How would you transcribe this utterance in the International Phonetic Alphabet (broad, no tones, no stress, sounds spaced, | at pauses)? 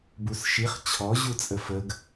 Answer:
b u s ʃ i χ t͡ɕʰ ɔ ʑ u t͡sʼ ə f ə ɡ